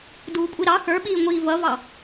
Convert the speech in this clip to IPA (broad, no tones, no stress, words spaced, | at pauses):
duːkʷʼiɾɑ xə˞ɓiːŋʷiː vʌvɑ